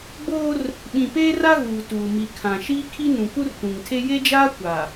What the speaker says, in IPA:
ɡ͡boː˦r | ɓĩ˨peː˦ra˦ ɣuː˨tuː˨mi˨ kʰã˨ ʃiː˦kʰi˦ nũ˨ku˦rtũ˨ŋtʰe˦ je˦d͡ʒaː˦ kʷa˨

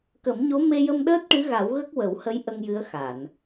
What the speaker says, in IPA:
kə˨˩˦mɲo˧˥ me˧jə˧mɗəː˦˥t̚ ʈɨ˧˥ɣa˨˩˦wɣə˦˥k̚ wə˨˩˦whə˧˥j ʔə˧ŋjɨ˧˥ə̯xa˨˩˨n

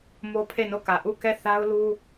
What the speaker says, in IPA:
mo˦pʰe˦˨no˦˨kä˨ ʔu˦˨kɛ˦˨ θa˦ʊ̯lu˦

